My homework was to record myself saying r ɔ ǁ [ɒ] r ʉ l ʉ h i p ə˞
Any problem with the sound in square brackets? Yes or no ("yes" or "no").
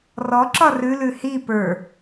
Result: no